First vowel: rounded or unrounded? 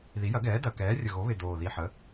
unrounded